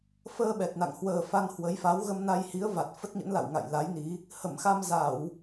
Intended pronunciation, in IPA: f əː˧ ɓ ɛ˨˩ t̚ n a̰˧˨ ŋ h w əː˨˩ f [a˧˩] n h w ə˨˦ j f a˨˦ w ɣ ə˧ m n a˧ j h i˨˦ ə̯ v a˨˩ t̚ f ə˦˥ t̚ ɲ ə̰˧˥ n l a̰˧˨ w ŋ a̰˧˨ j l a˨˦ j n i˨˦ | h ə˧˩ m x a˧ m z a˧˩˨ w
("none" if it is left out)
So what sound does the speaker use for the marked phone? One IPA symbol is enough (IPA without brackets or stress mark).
a˧